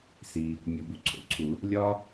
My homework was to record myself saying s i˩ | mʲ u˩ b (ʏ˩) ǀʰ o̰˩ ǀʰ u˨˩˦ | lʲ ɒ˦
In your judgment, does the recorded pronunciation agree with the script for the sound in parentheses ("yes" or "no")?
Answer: no